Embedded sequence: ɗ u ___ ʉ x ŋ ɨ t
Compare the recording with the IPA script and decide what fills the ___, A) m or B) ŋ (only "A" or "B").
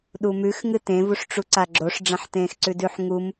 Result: A